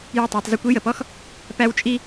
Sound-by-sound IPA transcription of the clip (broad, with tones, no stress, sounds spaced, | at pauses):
j ə˦˨ tˤ a˧ tˤ z i˧ kʷ i˦ j ə˨ p ɔ˦ x | p æ˦ w t͡ʃʼ i˦